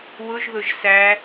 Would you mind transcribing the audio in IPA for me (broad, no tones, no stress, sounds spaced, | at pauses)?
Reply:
w ʊ ʒ ð ʊ ʒ s æ